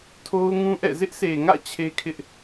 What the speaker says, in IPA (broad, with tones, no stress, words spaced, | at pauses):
tʰo˦ʊ̯ ŋũ˦ʔɛ̰˦˨ zɪ˦ʔse˨ŋä̰˦˨ t͡ɕʰe˦kʰɪ˦ʔ